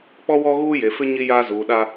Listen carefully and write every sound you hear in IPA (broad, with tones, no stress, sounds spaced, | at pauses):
k͡p ɔ˦ w ɔ˦ ɣ uː˦ j e˨ f ɪ˦ ɲ i˦ j aː˦ z uː˨ ɗ a˦